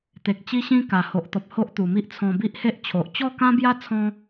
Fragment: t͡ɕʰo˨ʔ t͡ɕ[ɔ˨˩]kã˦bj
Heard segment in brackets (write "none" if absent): ɔ˥˧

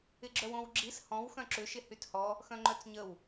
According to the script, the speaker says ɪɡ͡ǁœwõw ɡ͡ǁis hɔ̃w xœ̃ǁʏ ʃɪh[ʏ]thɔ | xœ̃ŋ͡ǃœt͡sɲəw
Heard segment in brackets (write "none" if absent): y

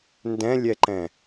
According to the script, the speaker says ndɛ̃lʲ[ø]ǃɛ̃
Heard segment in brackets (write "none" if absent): ɛ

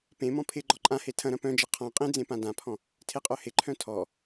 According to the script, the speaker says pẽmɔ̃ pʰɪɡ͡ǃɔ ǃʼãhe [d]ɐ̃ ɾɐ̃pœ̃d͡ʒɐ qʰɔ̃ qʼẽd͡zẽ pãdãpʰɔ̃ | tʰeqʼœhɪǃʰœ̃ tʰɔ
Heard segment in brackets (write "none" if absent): tʰ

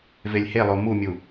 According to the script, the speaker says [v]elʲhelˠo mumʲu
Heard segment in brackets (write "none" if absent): v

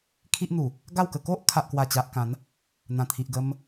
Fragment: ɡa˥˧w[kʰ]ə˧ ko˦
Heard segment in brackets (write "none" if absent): k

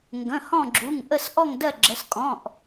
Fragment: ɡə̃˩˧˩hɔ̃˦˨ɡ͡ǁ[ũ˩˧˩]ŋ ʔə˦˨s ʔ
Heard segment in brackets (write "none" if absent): u˩˧˩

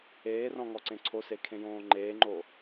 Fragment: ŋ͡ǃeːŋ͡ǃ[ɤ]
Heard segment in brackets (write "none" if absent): o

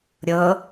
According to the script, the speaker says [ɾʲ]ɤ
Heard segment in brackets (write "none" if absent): ɾʲ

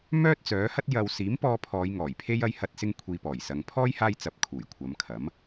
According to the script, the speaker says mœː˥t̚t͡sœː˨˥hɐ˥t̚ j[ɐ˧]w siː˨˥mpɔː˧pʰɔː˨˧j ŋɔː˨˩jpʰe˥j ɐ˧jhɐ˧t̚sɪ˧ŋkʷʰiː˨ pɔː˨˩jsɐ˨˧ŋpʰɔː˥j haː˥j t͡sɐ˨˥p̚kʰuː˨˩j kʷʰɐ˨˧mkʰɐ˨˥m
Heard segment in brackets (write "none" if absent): ɐ˧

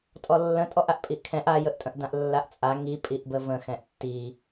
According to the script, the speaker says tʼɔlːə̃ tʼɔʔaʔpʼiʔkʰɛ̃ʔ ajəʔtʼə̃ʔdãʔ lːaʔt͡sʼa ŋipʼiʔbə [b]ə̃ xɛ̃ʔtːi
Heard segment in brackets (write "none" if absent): v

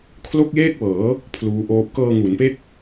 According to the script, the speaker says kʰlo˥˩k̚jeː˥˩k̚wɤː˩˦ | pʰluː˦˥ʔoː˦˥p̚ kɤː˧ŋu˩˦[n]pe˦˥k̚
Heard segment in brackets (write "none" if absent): n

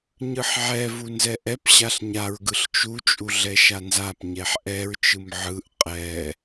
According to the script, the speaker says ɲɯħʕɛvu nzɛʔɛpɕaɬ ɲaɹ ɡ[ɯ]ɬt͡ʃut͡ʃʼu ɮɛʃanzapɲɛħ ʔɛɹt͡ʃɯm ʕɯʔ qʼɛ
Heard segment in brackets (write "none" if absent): ɯ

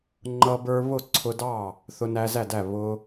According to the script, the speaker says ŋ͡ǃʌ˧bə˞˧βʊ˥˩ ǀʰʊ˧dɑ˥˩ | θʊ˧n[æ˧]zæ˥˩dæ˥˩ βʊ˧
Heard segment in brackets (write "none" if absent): æ˧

